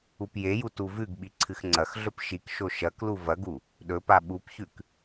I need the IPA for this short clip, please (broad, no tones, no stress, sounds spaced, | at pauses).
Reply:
u p j e j u t u v ʉ ɡ ɓ i ǀʰ ɨ x ŋ͡ǀ ɐ x ɮ ɵ p ʃ i k ʃ o ʃ ɐ k l u v ɐ ɡ u | ɗ ɵ p a ɓ u p ç ʉ k